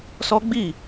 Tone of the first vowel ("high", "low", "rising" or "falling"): high